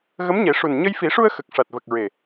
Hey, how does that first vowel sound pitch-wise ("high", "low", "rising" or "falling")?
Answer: rising